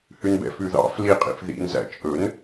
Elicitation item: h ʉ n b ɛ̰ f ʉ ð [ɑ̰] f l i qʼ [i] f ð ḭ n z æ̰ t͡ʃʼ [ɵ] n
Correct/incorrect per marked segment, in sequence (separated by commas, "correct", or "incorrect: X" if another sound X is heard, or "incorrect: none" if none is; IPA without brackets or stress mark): correct, incorrect: ḭ, correct